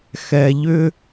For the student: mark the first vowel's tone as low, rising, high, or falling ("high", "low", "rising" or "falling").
low